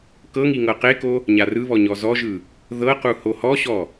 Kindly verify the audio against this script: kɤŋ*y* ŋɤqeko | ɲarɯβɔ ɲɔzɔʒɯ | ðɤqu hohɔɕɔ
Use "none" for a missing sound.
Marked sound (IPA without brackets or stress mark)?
i